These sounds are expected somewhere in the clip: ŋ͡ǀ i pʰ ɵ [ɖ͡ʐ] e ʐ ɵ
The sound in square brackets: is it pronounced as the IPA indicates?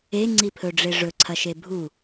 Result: yes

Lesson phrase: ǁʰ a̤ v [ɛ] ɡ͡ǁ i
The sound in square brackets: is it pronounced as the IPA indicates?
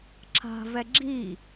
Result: yes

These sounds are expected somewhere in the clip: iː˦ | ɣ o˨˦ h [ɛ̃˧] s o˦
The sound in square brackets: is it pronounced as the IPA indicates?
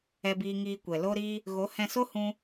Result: yes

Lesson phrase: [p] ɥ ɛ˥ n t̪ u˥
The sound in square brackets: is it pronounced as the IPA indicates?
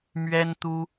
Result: no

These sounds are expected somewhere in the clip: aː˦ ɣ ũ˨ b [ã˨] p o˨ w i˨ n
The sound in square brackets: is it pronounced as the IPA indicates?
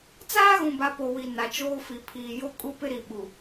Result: no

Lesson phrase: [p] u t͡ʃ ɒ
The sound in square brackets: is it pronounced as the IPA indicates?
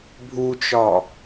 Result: no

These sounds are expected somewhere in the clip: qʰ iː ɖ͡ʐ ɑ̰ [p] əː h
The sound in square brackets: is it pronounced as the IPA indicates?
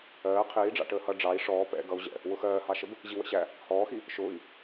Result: no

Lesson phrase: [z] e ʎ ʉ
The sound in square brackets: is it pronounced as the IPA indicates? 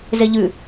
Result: yes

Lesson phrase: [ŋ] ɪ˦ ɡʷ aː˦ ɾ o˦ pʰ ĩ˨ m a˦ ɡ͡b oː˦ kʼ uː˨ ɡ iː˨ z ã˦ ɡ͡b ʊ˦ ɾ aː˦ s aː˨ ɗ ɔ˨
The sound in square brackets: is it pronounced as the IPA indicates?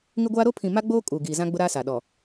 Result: yes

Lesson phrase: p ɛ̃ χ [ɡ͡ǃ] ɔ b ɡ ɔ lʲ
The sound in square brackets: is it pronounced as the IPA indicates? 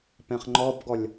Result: no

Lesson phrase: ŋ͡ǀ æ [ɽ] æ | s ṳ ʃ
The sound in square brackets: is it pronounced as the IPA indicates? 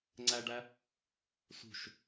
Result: no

